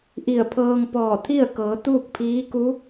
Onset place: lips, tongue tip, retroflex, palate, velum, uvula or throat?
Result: throat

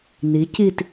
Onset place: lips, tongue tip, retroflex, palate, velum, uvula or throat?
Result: tongue tip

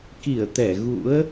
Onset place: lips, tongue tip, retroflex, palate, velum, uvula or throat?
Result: velum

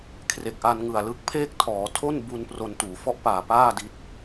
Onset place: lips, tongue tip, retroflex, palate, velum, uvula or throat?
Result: velum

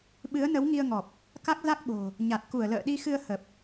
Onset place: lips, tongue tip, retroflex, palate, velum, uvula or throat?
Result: lips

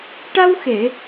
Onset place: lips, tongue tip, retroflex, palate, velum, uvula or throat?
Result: retroflex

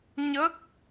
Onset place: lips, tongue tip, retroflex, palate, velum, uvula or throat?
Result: palate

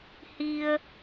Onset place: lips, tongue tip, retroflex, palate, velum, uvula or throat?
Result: throat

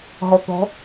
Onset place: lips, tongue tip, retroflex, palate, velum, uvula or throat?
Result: throat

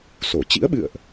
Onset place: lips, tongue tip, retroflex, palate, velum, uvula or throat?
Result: tongue tip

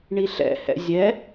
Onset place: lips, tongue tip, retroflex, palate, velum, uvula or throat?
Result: retroflex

